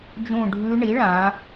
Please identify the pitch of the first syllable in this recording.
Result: falling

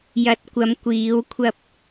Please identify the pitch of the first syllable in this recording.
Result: low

